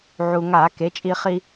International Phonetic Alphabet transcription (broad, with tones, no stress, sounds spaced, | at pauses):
ʕ u˩ ŋ a˧˩˧ k e˩˧ t͡ʃʼ i˧ χ i˧